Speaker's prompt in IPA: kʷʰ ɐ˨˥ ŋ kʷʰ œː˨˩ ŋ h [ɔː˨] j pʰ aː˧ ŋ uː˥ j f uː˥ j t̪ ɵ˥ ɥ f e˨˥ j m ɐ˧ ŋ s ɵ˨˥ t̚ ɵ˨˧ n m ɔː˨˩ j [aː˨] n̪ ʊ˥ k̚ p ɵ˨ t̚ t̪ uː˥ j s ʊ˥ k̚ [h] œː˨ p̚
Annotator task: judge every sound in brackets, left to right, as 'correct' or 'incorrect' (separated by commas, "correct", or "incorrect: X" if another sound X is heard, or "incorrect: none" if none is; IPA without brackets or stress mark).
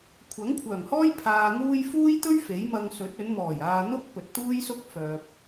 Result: incorrect: ɔː˥, incorrect: aː˧, incorrect: f